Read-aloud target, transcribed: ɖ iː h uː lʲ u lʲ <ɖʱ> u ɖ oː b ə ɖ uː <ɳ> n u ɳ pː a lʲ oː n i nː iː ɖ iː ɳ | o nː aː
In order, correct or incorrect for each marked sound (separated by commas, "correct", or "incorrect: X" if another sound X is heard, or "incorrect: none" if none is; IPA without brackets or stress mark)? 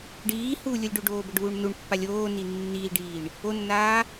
incorrect: ɖ, correct